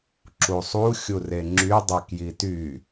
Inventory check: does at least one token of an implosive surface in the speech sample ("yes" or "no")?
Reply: no